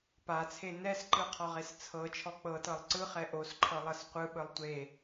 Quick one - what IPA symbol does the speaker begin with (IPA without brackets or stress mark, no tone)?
p